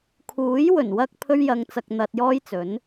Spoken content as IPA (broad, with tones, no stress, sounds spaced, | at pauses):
kʰ uː˨˥ j w ɵ˨˩ n w ɐ˧ k̚ pʰ ɵ˥ ɥ j ɐ˧ ŋ t͡s ɐ˧ k̚ n̪ ɐ˧ t̚ j ɔː˥ j t͡s ɵ˨˥ n